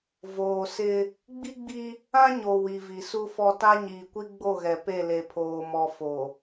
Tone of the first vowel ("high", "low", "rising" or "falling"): low